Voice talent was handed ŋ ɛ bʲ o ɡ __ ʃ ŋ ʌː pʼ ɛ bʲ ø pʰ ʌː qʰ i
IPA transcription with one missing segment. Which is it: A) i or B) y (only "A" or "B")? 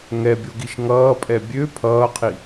A